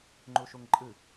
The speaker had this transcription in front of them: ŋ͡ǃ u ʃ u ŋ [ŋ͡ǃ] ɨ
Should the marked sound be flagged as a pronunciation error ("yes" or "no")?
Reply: yes